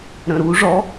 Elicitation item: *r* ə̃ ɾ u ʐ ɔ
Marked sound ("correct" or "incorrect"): incorrect